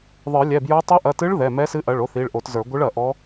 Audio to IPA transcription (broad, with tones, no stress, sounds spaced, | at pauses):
ðˤ ə˞˨˩˦ lʲ ɛ˩˧˩ b j ə˞˧˥ tˤ o˧˥ ʔ ɐ˩˧˩ t ɨ˧˥ ɭ ð ɛ˩˧˩ m ɛ˧˥ s ɨ˧˥ ʔ ɐ˩˧˩ ɭ o˧˥ θ i˩˧˩ ɭ ʔ o˨˩˦ t z ə˞˨˩˦ ɡʷ ɨ˧˥ ɭ ɐ˨˩˦ ʔ ɔ˧˥